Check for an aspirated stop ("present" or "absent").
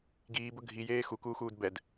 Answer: absent